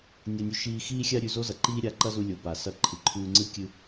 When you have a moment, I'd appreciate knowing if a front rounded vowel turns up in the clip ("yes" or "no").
no